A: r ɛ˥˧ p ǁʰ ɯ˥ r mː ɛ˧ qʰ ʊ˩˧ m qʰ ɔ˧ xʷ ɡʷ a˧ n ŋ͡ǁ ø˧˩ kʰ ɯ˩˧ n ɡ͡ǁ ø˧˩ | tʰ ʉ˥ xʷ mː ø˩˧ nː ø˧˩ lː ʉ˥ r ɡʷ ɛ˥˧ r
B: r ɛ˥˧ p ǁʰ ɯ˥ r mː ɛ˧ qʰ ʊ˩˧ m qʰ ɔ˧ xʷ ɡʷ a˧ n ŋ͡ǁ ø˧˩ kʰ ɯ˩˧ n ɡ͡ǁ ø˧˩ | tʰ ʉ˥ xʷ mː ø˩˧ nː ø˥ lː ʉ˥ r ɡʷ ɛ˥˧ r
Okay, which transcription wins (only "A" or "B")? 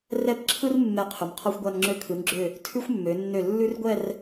A